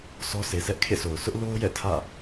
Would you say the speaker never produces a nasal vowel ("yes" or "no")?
yes